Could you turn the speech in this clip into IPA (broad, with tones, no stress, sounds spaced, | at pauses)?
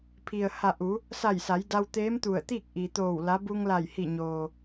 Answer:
pʰ i˩ ə̯ h a˧˩ ʔ u˩˧ | s a˧˩ j s a˩˧ j d a˧ w t̪ eː˧˥ m t̪ u˧˩ ə̯ t̪ iː˥˨ k̚ ʔ i˩ t̪ oː˧˩ w l a˧˥ b u˧ ŋ l a˧˩ j h i˧˩ ɲ oː˩